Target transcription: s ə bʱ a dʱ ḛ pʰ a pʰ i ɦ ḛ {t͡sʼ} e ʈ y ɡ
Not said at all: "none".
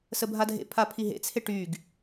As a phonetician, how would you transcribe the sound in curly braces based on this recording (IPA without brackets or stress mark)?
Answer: t͡sʰ